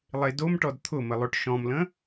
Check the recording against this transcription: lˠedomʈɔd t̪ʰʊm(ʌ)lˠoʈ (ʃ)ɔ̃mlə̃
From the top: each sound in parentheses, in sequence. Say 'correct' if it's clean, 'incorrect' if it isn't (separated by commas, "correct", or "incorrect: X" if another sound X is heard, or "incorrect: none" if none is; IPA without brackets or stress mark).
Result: incorrect: ə, correct